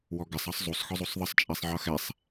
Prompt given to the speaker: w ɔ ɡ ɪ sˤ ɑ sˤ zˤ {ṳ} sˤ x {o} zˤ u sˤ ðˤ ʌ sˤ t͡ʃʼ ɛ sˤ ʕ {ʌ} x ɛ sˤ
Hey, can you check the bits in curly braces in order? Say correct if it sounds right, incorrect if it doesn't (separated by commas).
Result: incorrect, incorrect, correct